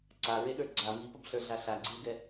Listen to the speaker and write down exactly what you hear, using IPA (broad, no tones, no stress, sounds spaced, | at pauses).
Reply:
ǀ a ɹ e ɗ ə˞ ɡ͡ǀ a m i p ɐ b ɬ ə˞ ɮ a ɬ a ɡ͡ǀ i w ɡ ɛ